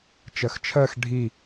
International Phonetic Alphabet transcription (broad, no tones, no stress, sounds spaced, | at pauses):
t͡ʃ ɜ x t͡ʃʰ ɜ x ɖʱ i